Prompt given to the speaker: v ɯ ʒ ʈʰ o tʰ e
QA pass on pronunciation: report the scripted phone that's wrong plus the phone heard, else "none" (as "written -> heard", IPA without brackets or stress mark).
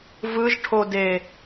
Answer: tʰ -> d